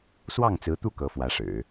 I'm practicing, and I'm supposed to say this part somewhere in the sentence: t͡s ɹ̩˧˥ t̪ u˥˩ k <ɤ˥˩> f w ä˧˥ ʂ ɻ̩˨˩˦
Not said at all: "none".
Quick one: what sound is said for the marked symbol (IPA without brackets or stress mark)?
ɤ˧˥